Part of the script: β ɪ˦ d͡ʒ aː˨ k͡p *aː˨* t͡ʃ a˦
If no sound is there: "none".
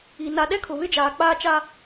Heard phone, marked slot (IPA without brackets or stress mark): aː˦